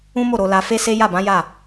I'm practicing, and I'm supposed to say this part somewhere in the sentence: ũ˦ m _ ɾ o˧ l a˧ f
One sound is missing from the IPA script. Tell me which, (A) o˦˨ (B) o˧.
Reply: A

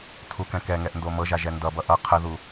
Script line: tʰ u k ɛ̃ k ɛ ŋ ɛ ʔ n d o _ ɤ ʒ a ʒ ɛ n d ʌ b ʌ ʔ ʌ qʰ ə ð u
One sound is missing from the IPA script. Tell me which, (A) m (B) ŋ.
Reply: A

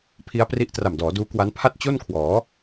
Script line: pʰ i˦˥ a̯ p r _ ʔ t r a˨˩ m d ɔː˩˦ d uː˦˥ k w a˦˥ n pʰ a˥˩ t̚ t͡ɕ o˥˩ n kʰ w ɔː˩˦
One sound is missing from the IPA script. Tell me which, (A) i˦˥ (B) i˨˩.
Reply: A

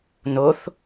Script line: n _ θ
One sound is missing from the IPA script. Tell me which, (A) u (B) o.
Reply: B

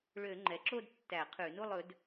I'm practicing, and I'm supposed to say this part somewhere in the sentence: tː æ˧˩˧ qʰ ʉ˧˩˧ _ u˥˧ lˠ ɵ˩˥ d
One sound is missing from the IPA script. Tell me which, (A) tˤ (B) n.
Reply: B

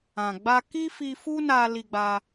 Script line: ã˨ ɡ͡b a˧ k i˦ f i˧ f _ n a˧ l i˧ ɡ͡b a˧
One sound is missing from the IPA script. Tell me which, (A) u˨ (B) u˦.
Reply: B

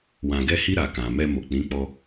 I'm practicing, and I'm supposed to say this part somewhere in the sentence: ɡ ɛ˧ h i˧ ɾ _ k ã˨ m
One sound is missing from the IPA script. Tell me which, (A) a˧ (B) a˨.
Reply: B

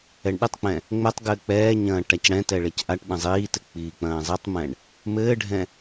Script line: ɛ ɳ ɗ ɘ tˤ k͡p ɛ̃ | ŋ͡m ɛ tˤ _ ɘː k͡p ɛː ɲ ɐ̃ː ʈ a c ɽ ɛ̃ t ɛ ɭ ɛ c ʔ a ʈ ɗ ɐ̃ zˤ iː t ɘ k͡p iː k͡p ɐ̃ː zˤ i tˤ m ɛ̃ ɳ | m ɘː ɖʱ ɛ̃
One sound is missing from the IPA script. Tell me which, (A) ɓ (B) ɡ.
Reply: B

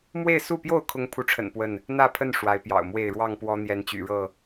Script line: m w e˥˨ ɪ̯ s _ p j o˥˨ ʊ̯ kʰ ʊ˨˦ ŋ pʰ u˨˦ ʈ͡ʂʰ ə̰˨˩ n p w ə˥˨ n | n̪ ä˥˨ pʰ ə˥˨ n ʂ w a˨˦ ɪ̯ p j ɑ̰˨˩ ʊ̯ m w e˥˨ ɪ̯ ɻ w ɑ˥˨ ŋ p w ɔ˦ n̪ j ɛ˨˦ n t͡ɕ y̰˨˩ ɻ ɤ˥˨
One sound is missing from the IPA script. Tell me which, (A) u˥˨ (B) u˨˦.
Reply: A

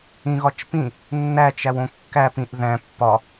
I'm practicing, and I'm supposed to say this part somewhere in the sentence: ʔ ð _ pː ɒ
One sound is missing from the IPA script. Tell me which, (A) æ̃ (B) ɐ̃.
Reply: A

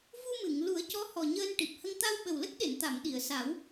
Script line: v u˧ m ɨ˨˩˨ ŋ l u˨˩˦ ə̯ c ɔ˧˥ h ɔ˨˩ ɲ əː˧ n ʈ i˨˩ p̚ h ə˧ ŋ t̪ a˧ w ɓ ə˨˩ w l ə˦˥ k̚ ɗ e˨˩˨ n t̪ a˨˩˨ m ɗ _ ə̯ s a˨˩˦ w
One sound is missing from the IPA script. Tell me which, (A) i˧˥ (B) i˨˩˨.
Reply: B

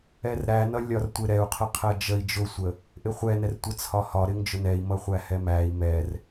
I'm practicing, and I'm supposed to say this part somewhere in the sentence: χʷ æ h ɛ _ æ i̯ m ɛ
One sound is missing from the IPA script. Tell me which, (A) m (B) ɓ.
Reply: A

